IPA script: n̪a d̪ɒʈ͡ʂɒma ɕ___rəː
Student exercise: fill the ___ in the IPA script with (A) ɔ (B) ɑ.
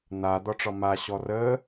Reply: A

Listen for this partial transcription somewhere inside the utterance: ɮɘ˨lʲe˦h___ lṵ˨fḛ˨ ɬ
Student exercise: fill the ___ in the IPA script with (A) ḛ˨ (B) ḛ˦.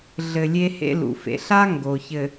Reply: B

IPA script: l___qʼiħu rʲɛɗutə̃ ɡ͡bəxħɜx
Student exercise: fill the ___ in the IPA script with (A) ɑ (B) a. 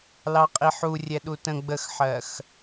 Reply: A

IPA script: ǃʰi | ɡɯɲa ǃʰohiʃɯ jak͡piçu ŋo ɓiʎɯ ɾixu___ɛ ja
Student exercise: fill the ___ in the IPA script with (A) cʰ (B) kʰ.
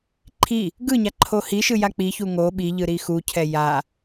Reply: A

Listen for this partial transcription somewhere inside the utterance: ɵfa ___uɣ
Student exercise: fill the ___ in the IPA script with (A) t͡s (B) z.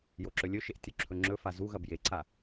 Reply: B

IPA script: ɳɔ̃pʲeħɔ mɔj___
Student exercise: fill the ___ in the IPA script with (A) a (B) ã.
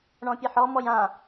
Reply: B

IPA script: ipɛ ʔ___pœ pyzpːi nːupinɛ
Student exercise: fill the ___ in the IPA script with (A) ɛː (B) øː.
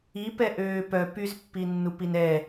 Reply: B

